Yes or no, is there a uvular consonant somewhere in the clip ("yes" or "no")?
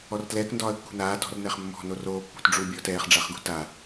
yes